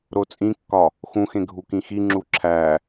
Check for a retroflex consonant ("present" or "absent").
absent